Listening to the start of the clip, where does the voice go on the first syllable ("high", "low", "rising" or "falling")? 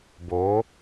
rising